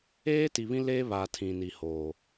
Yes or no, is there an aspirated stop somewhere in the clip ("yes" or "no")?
yes